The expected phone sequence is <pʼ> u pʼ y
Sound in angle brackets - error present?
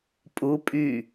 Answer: no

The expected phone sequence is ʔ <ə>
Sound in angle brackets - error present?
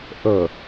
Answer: no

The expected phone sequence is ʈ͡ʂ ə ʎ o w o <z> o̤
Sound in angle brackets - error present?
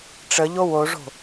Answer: yes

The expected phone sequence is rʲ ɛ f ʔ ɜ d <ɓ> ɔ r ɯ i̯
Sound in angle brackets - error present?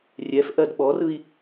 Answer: no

